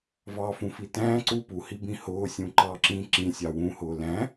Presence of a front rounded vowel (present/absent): absent